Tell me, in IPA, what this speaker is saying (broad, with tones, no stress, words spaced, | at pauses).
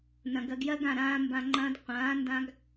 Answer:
nɐ̃˨ɡɜ˧ɡjɜ˦ɡã˦˨ ɾãː˧mbã˨ŋ͡ǃɐ̃ː˧d qʷãː˨˦ ndã˧ɡ